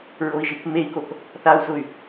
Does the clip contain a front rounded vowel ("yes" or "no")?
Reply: yes